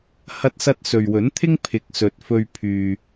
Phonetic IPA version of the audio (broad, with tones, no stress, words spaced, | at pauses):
hɐ˥t̚sɐ˥t̚ sɵ˨ɥwɵ˨˥nt̪ʰɪ˥ŋ pʰɪ˨˥k̚sɵ˨˥t̚fɵ˧ɥ pʰyː˨